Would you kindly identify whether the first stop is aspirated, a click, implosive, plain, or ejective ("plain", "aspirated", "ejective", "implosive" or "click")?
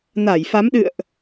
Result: implosive